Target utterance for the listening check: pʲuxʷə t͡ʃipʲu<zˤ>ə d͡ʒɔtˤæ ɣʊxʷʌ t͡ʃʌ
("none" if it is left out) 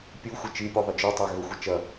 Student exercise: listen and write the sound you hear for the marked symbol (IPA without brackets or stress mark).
ðˤ